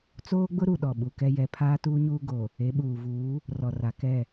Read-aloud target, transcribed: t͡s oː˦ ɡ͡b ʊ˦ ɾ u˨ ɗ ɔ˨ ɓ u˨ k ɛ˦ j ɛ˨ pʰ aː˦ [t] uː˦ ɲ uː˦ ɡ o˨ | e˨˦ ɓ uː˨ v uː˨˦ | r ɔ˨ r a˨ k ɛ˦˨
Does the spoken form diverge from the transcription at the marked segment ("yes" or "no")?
no